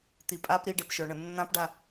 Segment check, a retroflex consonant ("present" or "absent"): present